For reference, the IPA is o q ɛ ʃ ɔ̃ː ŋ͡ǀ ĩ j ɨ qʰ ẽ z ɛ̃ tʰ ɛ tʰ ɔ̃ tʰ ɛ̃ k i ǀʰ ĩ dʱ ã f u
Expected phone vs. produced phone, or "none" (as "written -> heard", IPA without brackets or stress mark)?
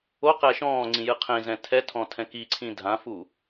none